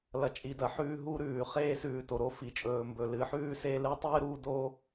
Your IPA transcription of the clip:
lɐ˨t͡ʃʼi˨dɐ˨ ħʉː˦ɦu˦ɾʉː˨ χeː˦sʉː˨ to˨ɾo˦fi˨t͡ʃʼɵː˨ mbɵ˨ lɨ˨˦ħʉː˦se˦ lɨ˦ tˤɨː˦ɾuː˦do˦

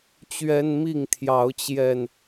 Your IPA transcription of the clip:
t͡ɕɥɛ˦nmi˥˨ŋt̪ʰjɑ˨˦ʊ̯t͡ɕjɛ˨˩n

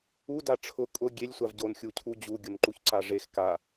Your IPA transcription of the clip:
u daʈ͡ʂʰʊ kʼʊ ɡʲelʲ sʷavɟon xʲucʰud͡ʑu ɡʲʊnǃuçǀaʐex ka

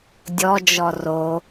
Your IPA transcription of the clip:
dʲɔd͡ʒɔ ro

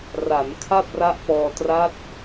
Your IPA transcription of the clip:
ra˩˦n kʰa˥˩p̚ra˦˥ʔpɔː˧ tra˦˥t̚

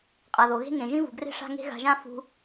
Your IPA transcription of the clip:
qʼa˨ðo˨ɣe̤˦ ŋẽ˨ʒĩ˦vṳ˨ɡre̤˦ ʂa̤˦ŋe̤˦ɣa̤˧ʒã˦ fṳ˧

